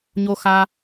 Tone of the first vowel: high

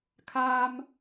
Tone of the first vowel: high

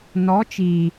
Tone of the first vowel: rising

